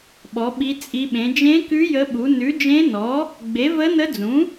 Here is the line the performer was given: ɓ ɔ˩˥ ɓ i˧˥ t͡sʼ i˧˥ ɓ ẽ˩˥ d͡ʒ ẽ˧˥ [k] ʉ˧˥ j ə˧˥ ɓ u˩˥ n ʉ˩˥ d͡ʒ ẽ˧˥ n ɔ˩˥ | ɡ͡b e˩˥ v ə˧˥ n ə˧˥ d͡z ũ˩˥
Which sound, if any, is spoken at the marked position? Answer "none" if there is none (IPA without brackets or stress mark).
k